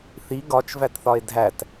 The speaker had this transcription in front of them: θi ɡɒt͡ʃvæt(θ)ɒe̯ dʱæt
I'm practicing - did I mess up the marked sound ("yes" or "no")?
no